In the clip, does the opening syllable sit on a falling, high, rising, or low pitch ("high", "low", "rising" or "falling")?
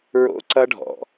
high